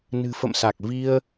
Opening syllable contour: low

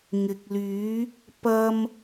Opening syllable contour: low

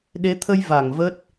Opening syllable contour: rising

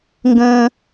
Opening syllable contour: high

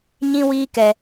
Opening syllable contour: high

